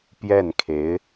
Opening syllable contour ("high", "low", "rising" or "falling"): falling